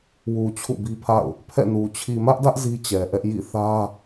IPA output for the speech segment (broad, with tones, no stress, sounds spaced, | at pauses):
w u˨ t͡ɕʰ ṵ˦˨ b i˦ pʰ a̰˦˨ ʊ̯ | pʰ ɛ̰˦˨ n u˨ t͡ɕʰ i˨ m ä˦ ʔ d ä˦ ʔ z i˦ t͡ɕ ɛ˨ ʔ ɛ˦ ʔ j ḭ˦˨ θ ä˦